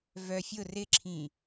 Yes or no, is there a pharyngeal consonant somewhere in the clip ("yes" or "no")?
no